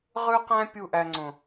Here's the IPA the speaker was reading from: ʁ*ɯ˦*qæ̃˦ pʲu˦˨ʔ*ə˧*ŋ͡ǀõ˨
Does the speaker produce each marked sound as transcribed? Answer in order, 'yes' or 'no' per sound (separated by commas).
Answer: yes, no